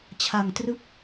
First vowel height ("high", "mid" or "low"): low